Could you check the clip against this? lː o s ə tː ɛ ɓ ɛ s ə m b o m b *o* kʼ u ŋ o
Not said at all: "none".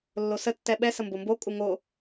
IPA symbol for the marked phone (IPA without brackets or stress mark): o